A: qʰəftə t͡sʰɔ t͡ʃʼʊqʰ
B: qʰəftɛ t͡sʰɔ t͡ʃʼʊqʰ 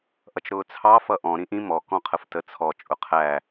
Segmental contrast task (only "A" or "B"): A